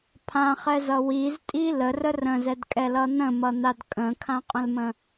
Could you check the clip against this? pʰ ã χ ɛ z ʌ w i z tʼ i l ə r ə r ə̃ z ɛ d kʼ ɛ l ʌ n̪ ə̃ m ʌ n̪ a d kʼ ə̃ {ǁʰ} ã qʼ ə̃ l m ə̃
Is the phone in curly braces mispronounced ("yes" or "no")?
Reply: yes